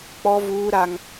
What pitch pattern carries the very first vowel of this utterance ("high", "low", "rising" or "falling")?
high